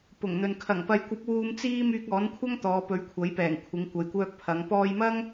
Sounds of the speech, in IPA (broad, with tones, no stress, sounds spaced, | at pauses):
p ʊ˨˩ ŋ n̪ ɵ˨ n kʰ ɐ˨˩ ŋ p ɐ˨ j kʷ ɐ˨˥ p̚ w uː˧ m t͡s iː˥ m yː˧ k̚ ɔː˨˥ n kʷʰ ɐ˥ ŋ t̪ ɔː˨˧ p ɵ˨˥ ɥ kʷʰ ɐ˨˥ j p ɛː˨˩ ŋ kʷʰ ɪ˨˧ ŋ kʷ ɐ˨ j kʷ œː˧ k̚ pʰ ɐ˨˧ ŋ p ɔː˧ j m ɐ˥ ŋ